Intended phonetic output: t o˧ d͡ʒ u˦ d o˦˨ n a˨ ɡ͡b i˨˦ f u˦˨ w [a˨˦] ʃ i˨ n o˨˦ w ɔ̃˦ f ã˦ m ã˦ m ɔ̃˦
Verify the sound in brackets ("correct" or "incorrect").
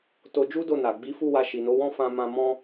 incorrect